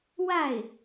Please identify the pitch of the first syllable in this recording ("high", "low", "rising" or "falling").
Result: falling